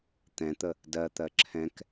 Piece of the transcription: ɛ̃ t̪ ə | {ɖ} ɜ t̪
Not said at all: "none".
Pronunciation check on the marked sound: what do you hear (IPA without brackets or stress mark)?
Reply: d